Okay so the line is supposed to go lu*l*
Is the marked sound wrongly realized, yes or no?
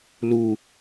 yes